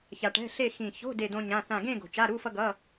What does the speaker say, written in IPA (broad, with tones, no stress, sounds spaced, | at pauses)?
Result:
ç a˧ ʈ ɛ̤˧˥˧ ɬ e˥˧ x ĩ˨˩ ç o̤˧˥˧ d e˥˧ d̪ õ˥ ɲ ã˧˥˧ θ ã˥˧ ɡ ẽ˥˧ ɡ o̤˨˩ t͡ʃ a˧˥˧ ɾ u˧˥˧ f ʌ˥ ɡ ʌ˧˥˧